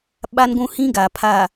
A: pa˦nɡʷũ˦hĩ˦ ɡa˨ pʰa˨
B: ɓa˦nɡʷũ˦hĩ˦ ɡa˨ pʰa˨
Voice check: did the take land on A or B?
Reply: B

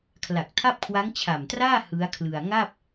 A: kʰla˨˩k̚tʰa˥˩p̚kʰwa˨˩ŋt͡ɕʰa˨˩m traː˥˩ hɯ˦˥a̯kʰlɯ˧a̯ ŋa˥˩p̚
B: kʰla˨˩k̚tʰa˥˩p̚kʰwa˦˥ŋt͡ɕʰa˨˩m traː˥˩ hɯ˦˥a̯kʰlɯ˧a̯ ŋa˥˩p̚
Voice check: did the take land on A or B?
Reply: B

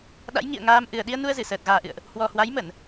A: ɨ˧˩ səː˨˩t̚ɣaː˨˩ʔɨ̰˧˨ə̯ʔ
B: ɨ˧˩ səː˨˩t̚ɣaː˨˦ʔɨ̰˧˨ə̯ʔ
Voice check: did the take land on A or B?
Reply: A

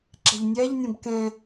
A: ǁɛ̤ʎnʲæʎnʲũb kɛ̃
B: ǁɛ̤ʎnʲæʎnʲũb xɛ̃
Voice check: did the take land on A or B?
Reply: A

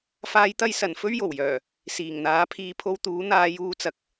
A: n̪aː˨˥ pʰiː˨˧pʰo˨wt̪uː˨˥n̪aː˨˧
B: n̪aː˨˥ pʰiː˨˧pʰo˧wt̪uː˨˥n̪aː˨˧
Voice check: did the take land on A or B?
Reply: B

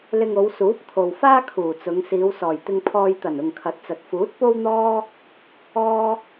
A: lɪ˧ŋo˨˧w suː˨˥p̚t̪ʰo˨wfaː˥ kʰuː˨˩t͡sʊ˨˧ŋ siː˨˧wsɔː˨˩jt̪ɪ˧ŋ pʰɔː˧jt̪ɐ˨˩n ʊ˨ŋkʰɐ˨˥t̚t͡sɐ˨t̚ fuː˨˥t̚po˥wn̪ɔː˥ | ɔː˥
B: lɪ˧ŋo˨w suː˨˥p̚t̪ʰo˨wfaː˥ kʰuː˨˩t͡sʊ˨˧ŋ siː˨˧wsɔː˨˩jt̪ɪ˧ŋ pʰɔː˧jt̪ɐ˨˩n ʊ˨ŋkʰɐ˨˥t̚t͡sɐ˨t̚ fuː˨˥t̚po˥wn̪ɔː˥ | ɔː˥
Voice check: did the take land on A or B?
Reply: A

